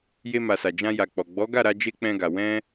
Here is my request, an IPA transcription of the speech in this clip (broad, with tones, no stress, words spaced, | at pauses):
je˧ma˨sa˨ d͡ʒã˧ja˨k͡pɔ˨ ɡ͡bɔ˨˦ɡa˦˨ɾa˧ d͡ʒe˦k͡pɛ̃˧ɡa˨ wɛ̃˧